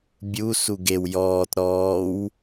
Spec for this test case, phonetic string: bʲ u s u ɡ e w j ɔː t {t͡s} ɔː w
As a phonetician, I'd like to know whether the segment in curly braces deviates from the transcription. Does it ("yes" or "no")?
yes